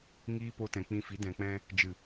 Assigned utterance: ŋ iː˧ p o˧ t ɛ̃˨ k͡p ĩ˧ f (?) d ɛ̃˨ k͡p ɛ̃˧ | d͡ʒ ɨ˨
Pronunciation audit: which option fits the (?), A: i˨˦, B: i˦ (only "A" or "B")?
A